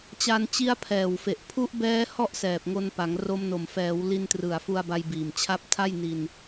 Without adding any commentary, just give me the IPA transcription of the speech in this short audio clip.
t͡ɕ a˧ n t͡ɕ i˦˥ a̯ pʰ ɛː˨˩ w f e˨˩ ʔ pʰ u˦˥ ʔ b ɛː˦˥ h ɔ˥˩ ʔ s ɛː˨˩ p̚ ŋ o˧ n p a˩˦ ŋ r o˧ m n o˨˩ m f ɛː˩˦ w l i˧ n t r ɯ˨˩ a̯ f u˧ a̯ b a˧ j b iː˨˩ m t͡ɕʰ a˦˥ p̚ tʰ a˥˩ j n i˧ n

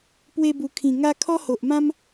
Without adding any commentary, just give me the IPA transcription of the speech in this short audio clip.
p w e˧ b u˨˩ kʰ ĩ˨˩ ŋ a˦ kʰ ɔ˦ h o˨ ʔ m ã˦ m

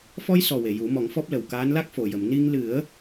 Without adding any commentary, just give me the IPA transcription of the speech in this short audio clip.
f ɔ˧ j s ɔ˨˩ w e˨˩˨ j u˨˩˦ m ɔ˨˩˦ ŋ f ɔ˦˥ p̚ l ə˨˩ w k aː˧˥ n l a˦˥ k̚ f o˨˩ j ə˨˩˨ m n i˧ ŋ l ɨ˨˩˦ ə̯

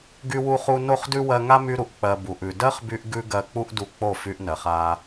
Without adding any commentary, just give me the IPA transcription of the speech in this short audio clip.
ɡ y˧ w u˧ χ u˧ n o˦˨ χ d ʉ˦ w ɜ˧ ŋ a˦ m y˧ ɾ u˨ ʔ k͡p ɜ˨ b u˨ ʔ ʉ˨ d ɜ˦ χ b y˧ ʔ ɡ ʉ˧ ɡ ɜ˧ k͡p u˦ ʔ d u˧ k͡p o˦˨ f y˧ ʔ n ɜ˨ χ a˧

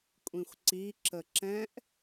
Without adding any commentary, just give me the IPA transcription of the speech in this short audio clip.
kʷʼ ĩ xʷ ǀ i ǁ ə ǁ ɛ̃ ʔ

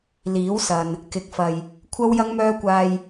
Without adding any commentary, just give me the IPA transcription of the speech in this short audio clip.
l iː˨˥ w s ɐ˨ n | k ɪ˨˥ k̚ f ɐ˨ j | kʷʰ ɐ˥ w j ɐ˥ ŋ m œː˥ kʷ aː˧ j

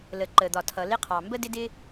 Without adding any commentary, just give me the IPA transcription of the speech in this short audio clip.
l ə˩ ǃ ə˩ d̪ ɒ˩ tʰ ʌ˩ l ɪ˥ qʰ ɑ˩ m b ə˥ d ɪ˥ d ɪ˥

